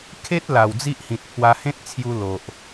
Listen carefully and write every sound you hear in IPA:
kʰ e˦ t̚ l a˨˩ w d͡z i˦ ʔ h ĩ˨ t̚ pʰ w a˧ h ẽ˦ t̚ t͡sʰ j u˧ l o˨ ʔ

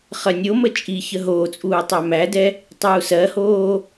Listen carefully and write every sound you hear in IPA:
χ ɜ nʲ o m ə t͡ʃʼ i ç ə ɦ oː t͡sʼ uː tˤ æ m æ d ɛ | tˤ uː s ɜ h oː

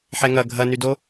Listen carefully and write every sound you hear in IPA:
ħ ɛ ŋ ɐ ɡʱ ɐ n y d o

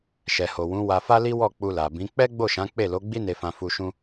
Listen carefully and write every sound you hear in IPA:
ʃ ɛ˨ h o˨ w ũ˨˦ w a˧ f a˦ l i˦ w ɔ˦˨ k͡p u˧ l a˨ b ĩ˨˦ k͡p ɛ˦ ɡ͡b o˦˨ ʃ ã˨˦ k͡p e˦˨ l o˨˦ ɡ͡b i˦ n e˧ f ã˧ f u˧ ʃ ũ˦

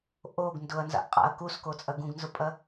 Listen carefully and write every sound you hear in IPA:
ʔ o ɡ n d ʊ ɐ̯ n z a̰ ʔ qʼ a̰ ɐ̯ k u s k o t͡sʼ ɐ ɡ ũ ɡ n z ʊ pʼ ɐ

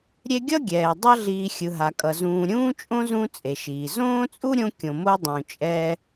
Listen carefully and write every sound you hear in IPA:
ɾʲ e˦ ɡʲ ʌ˥ ɡʲ ɛː˩ dˤ ʌ˦ ɮ iː˨ xʲ ɯ˩ ɦ a˩ kʼ ʌ˩ z ũː˨ ɾʲ ũː˥ t͡ʃʼ õ˥ z ũ˦ t͡sʼ e˩ ʃ iː˩ z õː˥ t͡sʼ u˥ ɾʲ õ˦ kʲ õ˨ m o˦ dˤ ũ˨ t͡ʃʼ ɛː˦

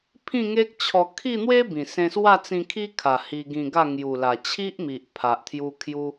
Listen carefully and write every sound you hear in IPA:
pʰ ĩ˥˧ ŋ e˦ k̚ t͡ɕʰ ɔ˧ kʰ i˥˧ n̪ w e˦ b ĩ˨˩ s ẽ˧ s w a˥˧ t͡s ĩ˧ kʰ i˦ kʰ a˨˩ h i˧ ɡ ĩ˧ ɡ a˥˧ ŋ j u˨˩ l a˨˩ t͡ɕʰ i˦ ʔ m i˨ ʔ pʰ a˨ ʔ t̪ʰ j u˧ kʰ j u˦

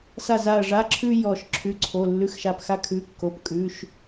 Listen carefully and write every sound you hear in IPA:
s a˦˨ z a˦˨ ɐ̯ ʐ a˧˥˧ ǁʰ ʉ˥ j ɔ˦˨ ʃ ǁʰ ʉ˧˥˧ ǀʰ o˧˥˧ lː ʉ˧˥˧ x ʃ a˦˨ p x a˥ kʰ ʉ˧˥˧ kː o˧˥˧ p kʼ ʉ˧˥˧ ʃ

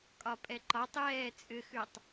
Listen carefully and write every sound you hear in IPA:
kʼ ɒ pʼ ɛ ǃ ɒ tˤ j ɛː t͡sʼ ʏ x ʉ tˤ

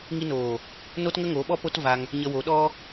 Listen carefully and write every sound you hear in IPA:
ŋ i˧ n oː˨ | n o˦ t ŋ ə˦ ŋ o˨˦ ɓ ɔ˦ p o˦ t v a˧ ŋ | ɲ ə˧ w o˨˦ ɗ ɔ˦

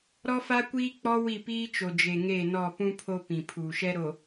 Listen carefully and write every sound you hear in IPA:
ɾ ɔ˦ f a˦ kʷ iː˦ k͡p ɔ˦ w i˦˨ p iː˦ t͡ʃ o˨ d͡ʒ e˨ ŋ e˦˨ n ɔ˦˨ p ũ˦ pʰ o˦ p ĩ˨ pʰ uː˨ ʃ ɛ˦ ɾ o˨

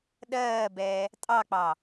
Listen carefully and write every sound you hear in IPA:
ɗ ɜː b ɛː | tʼ ɑ k͡p ɑ

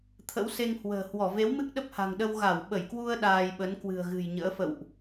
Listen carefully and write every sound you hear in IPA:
t̪ʰ ə̰˧˥ w s e˧ ŋ h w ə̤ː˨˩ h w ɔ˧˩ v e˨˦ w m ɨ˦˥ k̚ ɗ ə˦˥ p̚ h a̤˨˩ ŋ ɗ ə˧ w ɣ a˧˩ w ɓ ə˧˩ j k w u˧ ə̯ ɗ aː˧ j ɓ ə˨˦ n k w ɨ̤˨˩ ə̯ ɣ ɨ̤˨˩ j ɲ ə̰ː˧˥ f ə̰˧˨ w ʔ

